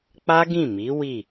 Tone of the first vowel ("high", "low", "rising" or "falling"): high